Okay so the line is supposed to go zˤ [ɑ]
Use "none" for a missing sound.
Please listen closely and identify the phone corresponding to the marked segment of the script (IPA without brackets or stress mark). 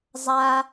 a